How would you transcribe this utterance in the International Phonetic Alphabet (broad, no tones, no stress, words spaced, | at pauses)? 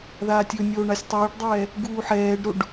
ðaːtʲɵnʲoː ɳasʲtˤɛːɖdˤɛː | ɡuːħɛːɖɾoɖ